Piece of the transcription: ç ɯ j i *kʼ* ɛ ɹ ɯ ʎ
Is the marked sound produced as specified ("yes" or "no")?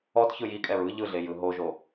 yes